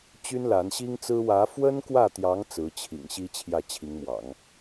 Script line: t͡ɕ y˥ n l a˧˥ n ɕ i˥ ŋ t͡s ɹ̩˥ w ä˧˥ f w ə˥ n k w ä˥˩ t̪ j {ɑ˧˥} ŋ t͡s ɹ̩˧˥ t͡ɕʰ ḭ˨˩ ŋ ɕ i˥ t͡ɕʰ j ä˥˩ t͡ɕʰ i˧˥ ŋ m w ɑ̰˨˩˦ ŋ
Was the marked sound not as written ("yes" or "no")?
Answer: no